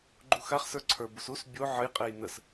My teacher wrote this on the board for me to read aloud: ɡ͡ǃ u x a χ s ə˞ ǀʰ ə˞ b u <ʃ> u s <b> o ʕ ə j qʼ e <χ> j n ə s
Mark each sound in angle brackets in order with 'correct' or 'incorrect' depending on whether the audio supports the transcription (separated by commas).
incorrect, incorrect, incorrect